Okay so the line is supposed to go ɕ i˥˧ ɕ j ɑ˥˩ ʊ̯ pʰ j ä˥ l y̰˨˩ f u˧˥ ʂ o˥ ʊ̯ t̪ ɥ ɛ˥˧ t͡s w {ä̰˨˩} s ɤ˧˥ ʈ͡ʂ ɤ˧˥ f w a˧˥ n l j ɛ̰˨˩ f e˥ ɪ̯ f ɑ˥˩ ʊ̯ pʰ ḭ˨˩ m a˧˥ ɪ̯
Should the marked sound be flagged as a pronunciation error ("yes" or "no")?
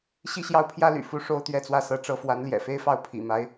yes